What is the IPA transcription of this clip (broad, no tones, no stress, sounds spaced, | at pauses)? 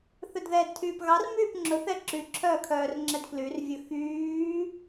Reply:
θ ɵ d ð ɛː d tʰ yː p ɣ ɑ r m yː p ŋ͡ǁ ɵ θ ɛ ǁ y ǁʰ œː kʰ œː r ŋ͡ǁ ɛ d k l y r vʲ ɵ x yː